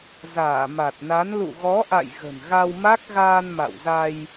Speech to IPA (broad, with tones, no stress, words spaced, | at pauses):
zaː˧˩ma˨˩t̚na˨˦n lṵ˧˨ɣɔ˨˦ʔa̰˧˨j ɣə̤˨˩nɣa˧wma˦˥k̚ ɣaː˧nma̰˧˨wza˧j